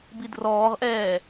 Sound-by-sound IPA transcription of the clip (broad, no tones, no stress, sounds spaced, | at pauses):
b i d r ɔː ʁ ʔ ɛː